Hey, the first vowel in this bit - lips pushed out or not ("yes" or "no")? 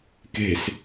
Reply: no